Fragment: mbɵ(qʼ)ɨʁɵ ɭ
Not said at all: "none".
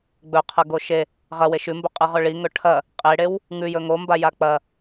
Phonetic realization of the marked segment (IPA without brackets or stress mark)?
qʼ